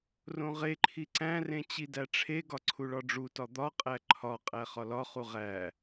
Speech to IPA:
rõʁeǃʰi ǀæ̃rẽ t͡ɕidæʈ͡ʂʰeɡɒ ǀʰuɭɒɖ͡ʐutɒ d̪ɒqʼæ ǃʰɒqʼæ χɒlɒχu ʁæ

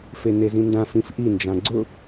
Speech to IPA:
fenezĩndã fĩfʔi nd͡ʒãɡ͡ǀʊ

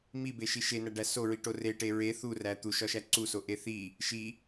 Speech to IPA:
mibeʃi ʃenæɖæ soɹiʈo reʈe ɹe θuræ t̪uʃɒʃæ ǀusoʔe θi | ʃi

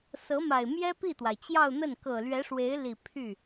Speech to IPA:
sɤ˧˥ma˨˩ɪ̯ mjɛ˥ pi˥˩t̪wa˩ɪ̯t͡ɕjɑ˥˧ʊ̯n̪ə˥˩n kɤ˨˩lɥɛ˧˥ʂwe˧˥ɪ̯li˨˩ pʰy˥˩

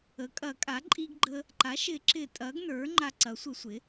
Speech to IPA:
ə˩˥kʼɐ˨˩˦kʼa˩˥ ǃʼi˧ɡɡ͡ǃə˧ | ǃa˩˥ʃɪ˨˩˦ǁɪ˨˩˦ tʼɐ˩˥ɡnə˞˩˥ ŋ͡ǃa˧ǀɐ˩˥sʷɪ˨˩˦sʷɪ˩˥

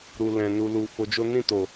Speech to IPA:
ɾu˨lɛ̃˨ nu˨lu˨ fo˧d͡ʒo˦ nĩ˦˨to˨

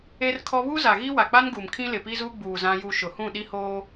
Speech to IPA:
e˦rkʰɔ˦ βu˦za˨ɣi˦ wa˨k͡pa˦nɡu˨m kʰĩ˦ lɪ˨pi˦zuː˦ ɡ͡buː˨zã˦ju˦ ʃʊ˨hũ˦˨ ɗi˦hoː˦

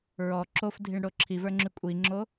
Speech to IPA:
ɹɔ ǁofdʱiɳɽo ǁʰivə˞ŋ͡ǁy kʷʼiŋ͡ǁo

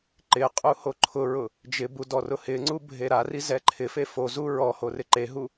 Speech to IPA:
ǃɪqʼu hoǃʰʊɹʊ | d͡ʒɪbu dɔrʊhɪŋ͡ǀu bʱeɾari zɛǃʰɪfe fozu ɹɔho rɪǃeɦu

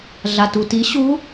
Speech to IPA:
ɮatuti ɕu

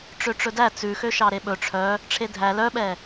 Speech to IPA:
ʈ͡ʂøʈ͡ʂɵdæ t͡sʉxøʃɑ ɾeɓɵ ʈ͡ʂʰœ | ʈ͡ʂʰedʱæ lœɓɛ

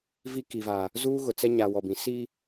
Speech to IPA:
vi˦ki˨vaː˨ | zuː˦ɣʊ˨t͡sɛ˦ ɲa˨ wɔ˨bĩ˨˦ siː˦

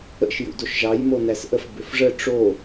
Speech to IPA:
ə̰ʃ jṵdoʃʒɑj monæsʔəf bʏfʐə ʈ͡ʂo

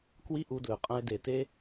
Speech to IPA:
kwi˥ʔu˧dlɵ˩qʼɐ̃˧ɪ̯ de˩te˧

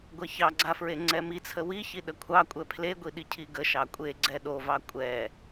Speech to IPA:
ɡʷɛçɑɡ͡ǀa fɹeŋ͡ǀɛmit͡sʰə wiçi ɗəkʷʰɑkʷʼɛ pʰleɡʷi ɗicʰiɡəʃɑ kʷʼeɡ͡ǀɛ ɗovɑ kʷʼɛ

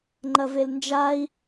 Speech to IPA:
ŋ͡ǃɐvelnd͡ʒai̯

